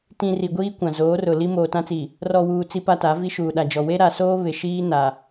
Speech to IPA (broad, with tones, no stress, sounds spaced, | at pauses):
t ĩ˨ r i˨ ɡʷ iː˦ kʷ ã˨ z oː˨˦ r ʊ˨ l i˦ m oː˨ t ã˦ t͡s i˨ | r ɔ˨ w uː˨ t͡s i˦ p a˦ t a˨˦ v i˦ ʃ uː˨ ɗ a˨ d͡ʒ ɔ˨ w e˦ ɾ a˨ s oː˦ β ɪ˨ ʃ iː˦ n a˨